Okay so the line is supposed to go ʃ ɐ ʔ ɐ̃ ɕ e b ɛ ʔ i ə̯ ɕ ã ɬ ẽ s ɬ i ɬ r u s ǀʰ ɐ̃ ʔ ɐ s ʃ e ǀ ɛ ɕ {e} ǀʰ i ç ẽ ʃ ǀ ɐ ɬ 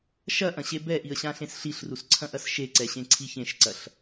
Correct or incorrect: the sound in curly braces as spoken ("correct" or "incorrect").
incorrect